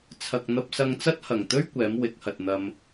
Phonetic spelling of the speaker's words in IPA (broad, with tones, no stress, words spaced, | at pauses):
t͡sʰɐ˨k̚n̪ɐ˧p̚sɐ˧ŋt͡sɐ˥t̚ hɐ˨˩ŋt̪ɵ˥ɥ kʷɛː˨˥m wɪ˨˥k̚hɐ˨t̚n̪ɐ˧m